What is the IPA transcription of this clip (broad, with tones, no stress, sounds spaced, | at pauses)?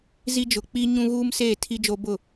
z i˦ d͡ʒ ʊ˨ k͡p i˦ ɲ ũ˦ ɣ uː˦ m s eː˦˨ tʰ i˦ d͡ʒ o˦ b ʊ˦˨